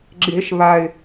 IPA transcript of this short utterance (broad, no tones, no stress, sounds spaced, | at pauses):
ɡ͡ǁ e ʃ β a ɪ̯